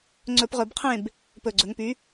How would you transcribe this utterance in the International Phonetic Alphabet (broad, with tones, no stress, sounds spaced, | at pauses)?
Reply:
ŋ͡ǀ ɵ˧˩˧ p ʁ ɵ˧˩˧ b qʰ ẽ˥˨ b | p ɵ˨˩ ɡ͡ǀ ɵ˩˧ ŋ p y˨˥